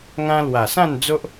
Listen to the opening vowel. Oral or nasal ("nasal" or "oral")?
nasal